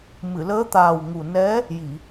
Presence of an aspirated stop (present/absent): absent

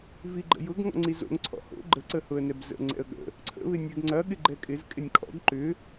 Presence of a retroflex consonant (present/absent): absent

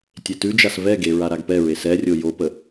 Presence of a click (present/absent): absent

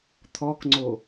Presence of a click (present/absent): present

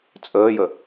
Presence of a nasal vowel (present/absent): absent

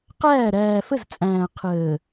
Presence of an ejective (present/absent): present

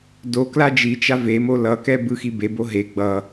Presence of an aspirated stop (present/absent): absent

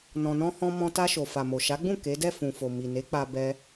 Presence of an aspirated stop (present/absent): absent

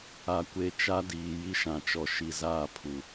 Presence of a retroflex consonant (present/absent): absent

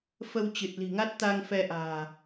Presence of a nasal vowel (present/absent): absent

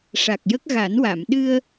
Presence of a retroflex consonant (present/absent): present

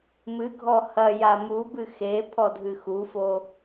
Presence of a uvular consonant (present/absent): absent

